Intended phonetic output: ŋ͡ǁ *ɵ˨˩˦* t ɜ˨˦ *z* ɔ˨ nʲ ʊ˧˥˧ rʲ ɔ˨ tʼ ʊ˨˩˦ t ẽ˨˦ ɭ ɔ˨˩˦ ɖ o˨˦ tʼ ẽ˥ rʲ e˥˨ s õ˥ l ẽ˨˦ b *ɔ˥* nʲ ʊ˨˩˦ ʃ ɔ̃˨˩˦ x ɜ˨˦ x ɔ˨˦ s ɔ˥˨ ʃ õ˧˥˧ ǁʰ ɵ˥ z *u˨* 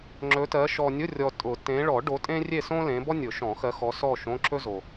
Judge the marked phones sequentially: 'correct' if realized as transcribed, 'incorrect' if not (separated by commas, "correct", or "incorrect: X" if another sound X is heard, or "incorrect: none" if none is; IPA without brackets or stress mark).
incorrect: ɵ˨˦, incorrect: ʃ, correct, incorrect: o˨